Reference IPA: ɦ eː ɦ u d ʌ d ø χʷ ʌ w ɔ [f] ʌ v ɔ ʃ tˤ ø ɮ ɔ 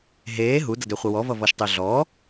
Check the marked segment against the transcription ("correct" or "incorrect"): incorrect